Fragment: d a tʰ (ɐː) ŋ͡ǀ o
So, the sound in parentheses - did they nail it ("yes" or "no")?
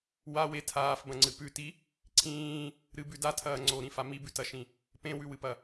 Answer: yes